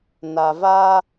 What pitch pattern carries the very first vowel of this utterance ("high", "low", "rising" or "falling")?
low